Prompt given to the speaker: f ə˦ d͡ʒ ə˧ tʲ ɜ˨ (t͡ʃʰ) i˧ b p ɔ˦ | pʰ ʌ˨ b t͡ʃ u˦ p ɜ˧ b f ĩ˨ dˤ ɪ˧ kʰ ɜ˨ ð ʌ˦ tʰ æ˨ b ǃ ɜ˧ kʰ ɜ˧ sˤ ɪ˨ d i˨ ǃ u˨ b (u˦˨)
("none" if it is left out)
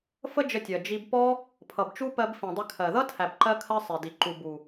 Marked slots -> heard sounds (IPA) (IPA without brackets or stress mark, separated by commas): d͡ʒ, u˨